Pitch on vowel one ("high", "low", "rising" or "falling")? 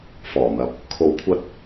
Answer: low